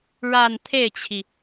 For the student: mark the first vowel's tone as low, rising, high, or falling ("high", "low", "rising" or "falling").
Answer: falling